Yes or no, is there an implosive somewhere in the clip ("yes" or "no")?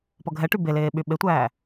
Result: yes